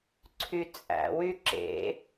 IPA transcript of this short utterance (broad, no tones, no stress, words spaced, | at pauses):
ǀʰyt͡sʼæ̰ wyǁḛ